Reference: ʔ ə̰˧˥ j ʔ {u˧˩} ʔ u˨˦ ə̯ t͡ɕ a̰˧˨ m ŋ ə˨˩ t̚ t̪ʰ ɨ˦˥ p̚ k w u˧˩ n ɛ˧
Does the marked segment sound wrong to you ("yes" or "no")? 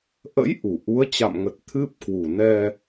no